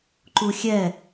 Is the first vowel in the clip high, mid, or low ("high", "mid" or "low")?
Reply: high